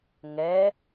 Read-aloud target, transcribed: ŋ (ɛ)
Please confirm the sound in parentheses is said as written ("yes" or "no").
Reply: yes